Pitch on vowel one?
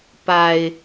low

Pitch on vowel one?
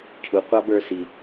low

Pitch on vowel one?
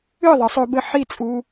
falling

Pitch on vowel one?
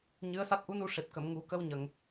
rising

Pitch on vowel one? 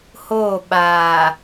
falling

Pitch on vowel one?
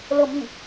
falling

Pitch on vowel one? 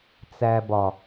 low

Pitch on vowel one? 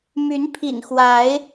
rising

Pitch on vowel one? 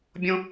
high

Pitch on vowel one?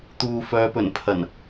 low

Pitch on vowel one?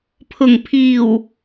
low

